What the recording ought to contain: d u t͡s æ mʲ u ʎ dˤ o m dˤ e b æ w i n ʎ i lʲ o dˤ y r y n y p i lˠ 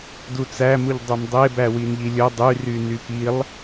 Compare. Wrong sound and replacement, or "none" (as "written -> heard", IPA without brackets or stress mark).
mʲ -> m